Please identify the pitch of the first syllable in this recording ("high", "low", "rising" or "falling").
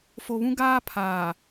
low